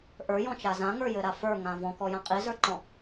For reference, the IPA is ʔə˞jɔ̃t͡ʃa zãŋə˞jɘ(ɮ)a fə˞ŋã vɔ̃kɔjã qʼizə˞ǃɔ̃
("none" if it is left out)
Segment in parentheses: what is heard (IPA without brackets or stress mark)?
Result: ɾ